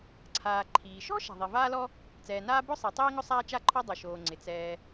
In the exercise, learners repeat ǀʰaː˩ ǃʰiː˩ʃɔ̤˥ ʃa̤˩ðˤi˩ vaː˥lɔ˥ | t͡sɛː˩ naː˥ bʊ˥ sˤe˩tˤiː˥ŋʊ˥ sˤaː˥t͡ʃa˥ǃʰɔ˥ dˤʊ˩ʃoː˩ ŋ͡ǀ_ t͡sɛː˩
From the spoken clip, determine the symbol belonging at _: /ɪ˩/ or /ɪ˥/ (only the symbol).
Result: ɪ˩